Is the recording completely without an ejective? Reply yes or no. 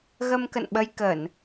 yes